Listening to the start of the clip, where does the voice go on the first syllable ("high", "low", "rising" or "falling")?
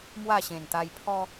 falling